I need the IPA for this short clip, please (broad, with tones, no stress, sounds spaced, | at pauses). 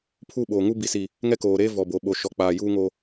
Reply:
pʰ u˦˨ ɓ oː˨ ŋ u˦ b i˨ s i˨ | ŋ ɛ˦ k oː˨ ɾ eː˦ v ɔ˨ b o˨ ɓ o˨ ʃ ɔ˨ k͡p aː˨ j uː˦ ŋ o˦